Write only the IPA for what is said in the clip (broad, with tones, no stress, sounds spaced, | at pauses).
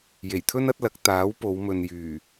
j e˨˩ j t̪ʰ ɵ˥ n ɐ˨˥ t̚ l ɐ˨˥ k̚ t̪ aː˨˥ w p o˨˧ w m ɵ˨ n j yː˨˩